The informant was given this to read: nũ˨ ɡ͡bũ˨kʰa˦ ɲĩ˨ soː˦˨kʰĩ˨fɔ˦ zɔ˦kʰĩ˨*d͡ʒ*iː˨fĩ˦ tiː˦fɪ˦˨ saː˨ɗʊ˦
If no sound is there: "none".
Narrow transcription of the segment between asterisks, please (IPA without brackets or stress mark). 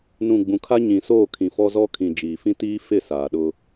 d͡ʒ